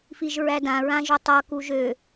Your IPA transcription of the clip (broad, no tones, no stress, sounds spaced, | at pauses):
f i ʒ ɹ æ d ã ɹ ã ʒ ɵ tˤ ʌ k u ʒ ø